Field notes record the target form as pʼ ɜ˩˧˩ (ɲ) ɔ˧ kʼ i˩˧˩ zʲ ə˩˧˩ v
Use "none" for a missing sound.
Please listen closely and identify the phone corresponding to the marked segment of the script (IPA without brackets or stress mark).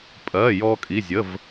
j